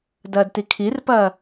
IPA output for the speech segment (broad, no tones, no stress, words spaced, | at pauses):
dɐːdtikʰirpɐː